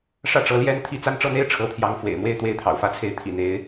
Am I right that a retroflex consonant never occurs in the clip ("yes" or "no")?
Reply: no